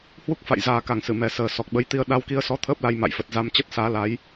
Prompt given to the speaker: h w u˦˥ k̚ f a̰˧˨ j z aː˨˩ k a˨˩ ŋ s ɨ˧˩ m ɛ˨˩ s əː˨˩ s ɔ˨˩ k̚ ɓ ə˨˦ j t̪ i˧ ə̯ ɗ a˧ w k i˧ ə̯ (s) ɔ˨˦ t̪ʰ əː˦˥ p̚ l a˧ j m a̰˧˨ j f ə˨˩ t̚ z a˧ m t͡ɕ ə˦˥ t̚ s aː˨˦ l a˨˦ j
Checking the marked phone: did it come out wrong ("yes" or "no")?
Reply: no